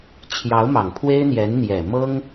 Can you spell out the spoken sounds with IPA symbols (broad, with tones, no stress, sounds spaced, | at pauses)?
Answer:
t͡ɕʰ j ɑ˧˥ ʊ̯ m ɑ˨˩ ŋ pʰ w e˥ ɪ̯ n̪ j ɛ˧˥ n n̪ j ɛ˨˩ m ɤ˥ ŋ